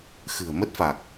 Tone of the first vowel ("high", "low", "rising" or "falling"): low